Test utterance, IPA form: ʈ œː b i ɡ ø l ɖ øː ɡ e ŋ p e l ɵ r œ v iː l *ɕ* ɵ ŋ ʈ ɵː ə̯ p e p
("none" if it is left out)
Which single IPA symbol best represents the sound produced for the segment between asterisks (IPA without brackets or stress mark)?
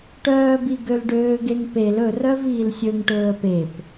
sʲ